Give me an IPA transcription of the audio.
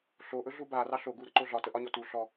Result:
ɬ o ʔ ɵ ɮ u b a r ɑ ɬ o ɡ u ɾ ə ǃ o ɮ ɒ t ə ʔ ɒ ɲ ɔ t u ɬ ɔ

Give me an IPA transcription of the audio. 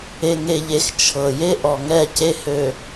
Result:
e˨ ŋ e˨ ʎ e˨ x t͡ʃʰ ɤ˨ j e˦ ʔ ɔ˨ ŋ ɛ˦˨ c e˦ h ø˨

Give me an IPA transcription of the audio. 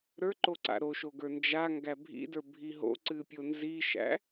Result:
ɾ ə˞ ǃ o ǀ a̰ ɾ o ʃ o ɡ ə˞ n d͡ʒ a ŋ ɡ æ bʱ ḭ d ə˞ bʱ i ɦ o̰ ǀ ɨ pʲ o n z i ʃ æ̰

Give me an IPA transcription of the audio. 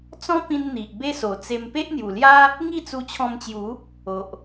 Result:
t͡s ɔ̃˦ p ĩ˧ n n̪ i˨ ʔ b e˦ s o˨˩ t͡s e˧ m p e˦ ʔ n̪ j u˨˩ l j a˦ | ŋ i˥˧ t͡s u˧ t͡ɕʰ ɔ̃˧ m t͡ɕ j u˨˦ | o˨ ʔ

